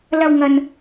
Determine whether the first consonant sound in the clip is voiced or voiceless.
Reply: voiced